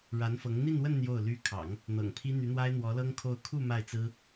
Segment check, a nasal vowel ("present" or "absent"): absent